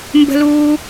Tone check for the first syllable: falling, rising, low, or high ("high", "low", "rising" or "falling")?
high